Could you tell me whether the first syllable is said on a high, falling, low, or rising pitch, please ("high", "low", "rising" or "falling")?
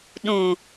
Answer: low